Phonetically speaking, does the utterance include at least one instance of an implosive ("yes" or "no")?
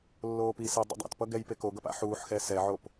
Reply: no